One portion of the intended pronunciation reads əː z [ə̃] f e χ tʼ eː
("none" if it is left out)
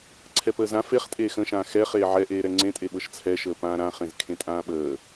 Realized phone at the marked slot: ã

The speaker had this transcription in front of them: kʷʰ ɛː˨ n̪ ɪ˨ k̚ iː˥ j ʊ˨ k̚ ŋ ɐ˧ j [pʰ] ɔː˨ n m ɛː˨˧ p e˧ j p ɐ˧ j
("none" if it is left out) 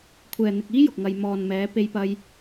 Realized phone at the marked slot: m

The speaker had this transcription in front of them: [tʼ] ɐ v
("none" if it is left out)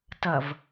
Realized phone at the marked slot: t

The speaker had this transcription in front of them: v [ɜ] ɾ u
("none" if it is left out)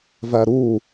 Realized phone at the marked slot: æ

